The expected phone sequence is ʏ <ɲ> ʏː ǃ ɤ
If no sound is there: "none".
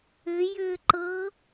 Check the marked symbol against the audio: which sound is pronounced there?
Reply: j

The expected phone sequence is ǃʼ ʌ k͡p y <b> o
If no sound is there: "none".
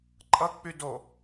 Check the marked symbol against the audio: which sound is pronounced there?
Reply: d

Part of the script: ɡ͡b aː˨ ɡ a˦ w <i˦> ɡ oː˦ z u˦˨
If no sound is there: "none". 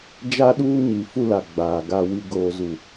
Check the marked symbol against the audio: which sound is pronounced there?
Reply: i˦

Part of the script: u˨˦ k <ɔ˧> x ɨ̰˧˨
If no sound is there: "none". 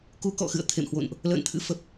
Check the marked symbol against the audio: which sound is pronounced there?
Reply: ɔ̰˧˨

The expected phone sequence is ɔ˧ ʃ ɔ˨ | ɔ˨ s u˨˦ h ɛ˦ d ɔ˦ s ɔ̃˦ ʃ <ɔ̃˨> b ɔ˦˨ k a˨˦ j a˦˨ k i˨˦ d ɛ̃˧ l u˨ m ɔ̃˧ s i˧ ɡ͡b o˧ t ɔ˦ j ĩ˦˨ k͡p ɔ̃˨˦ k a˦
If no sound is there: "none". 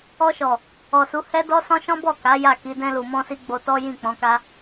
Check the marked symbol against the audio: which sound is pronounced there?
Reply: ɔ̃˦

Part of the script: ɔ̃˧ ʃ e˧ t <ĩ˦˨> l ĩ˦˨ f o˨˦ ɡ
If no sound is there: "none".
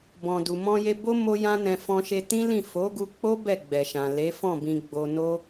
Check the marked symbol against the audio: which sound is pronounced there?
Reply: ĩ˦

